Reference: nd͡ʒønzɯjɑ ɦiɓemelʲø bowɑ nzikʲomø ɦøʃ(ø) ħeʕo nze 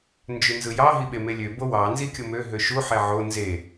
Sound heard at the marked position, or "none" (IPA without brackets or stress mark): u